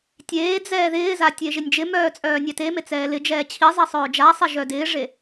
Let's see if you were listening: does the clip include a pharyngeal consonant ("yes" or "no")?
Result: no